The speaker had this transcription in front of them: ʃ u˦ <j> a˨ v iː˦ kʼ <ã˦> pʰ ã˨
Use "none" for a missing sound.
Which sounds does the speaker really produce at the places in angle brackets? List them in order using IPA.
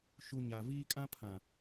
ɲ, ã˦

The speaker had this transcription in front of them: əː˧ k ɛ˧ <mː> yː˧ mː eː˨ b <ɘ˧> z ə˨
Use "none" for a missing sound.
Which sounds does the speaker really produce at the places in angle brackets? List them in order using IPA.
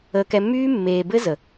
mː, ɘ˧

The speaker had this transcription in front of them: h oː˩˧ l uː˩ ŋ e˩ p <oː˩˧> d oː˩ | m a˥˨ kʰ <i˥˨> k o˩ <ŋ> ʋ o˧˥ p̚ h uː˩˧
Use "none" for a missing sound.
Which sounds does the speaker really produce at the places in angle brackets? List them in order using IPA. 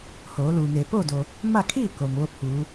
oː˥˨, i˥˨, ŋ

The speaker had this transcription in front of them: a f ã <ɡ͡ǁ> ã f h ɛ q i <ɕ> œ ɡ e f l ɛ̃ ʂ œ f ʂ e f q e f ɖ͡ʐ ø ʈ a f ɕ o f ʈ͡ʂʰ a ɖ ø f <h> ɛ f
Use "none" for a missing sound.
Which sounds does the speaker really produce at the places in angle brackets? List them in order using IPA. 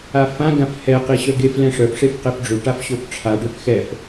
ɡ, ɕ, x

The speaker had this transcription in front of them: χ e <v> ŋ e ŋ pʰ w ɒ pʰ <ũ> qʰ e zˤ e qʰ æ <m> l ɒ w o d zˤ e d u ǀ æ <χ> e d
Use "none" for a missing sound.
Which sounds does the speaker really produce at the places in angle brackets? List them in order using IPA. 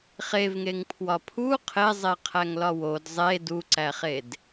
v, u, ŋ, χ

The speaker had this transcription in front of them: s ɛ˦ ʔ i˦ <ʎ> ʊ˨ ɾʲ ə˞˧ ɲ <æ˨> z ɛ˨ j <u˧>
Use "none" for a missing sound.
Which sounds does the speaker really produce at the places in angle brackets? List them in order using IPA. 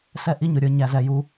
ɲ, æ˨, u˧

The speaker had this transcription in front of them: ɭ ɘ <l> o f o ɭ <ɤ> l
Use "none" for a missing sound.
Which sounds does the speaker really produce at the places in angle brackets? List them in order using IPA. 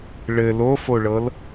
l, ɤ

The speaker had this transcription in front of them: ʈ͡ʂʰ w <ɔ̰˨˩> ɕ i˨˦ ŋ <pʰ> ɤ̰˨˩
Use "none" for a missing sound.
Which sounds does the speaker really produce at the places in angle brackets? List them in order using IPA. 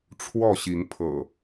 ɔ˥˨, pʰ

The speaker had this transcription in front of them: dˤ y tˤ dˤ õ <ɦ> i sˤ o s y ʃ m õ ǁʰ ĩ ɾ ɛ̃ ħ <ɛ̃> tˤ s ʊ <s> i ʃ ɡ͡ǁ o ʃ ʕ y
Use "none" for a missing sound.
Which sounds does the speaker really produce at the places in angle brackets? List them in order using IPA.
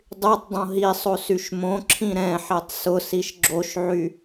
ɦ, ɛ, s

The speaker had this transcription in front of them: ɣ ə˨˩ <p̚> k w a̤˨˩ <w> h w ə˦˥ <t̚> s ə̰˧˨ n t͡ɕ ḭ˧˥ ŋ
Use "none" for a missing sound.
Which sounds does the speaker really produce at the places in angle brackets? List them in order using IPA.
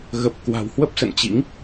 p̚, w, p̚

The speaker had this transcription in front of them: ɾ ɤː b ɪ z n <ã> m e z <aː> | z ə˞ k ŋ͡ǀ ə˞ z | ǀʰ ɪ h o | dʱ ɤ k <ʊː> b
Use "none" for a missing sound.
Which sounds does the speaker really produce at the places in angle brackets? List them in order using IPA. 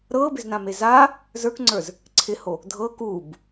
ã, aː, uː

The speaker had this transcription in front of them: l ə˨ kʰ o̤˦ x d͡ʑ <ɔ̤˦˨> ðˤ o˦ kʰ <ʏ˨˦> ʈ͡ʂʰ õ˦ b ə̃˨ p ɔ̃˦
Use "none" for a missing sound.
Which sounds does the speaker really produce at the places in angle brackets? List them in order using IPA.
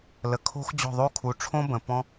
ɔ̤˦˨, u˨˦

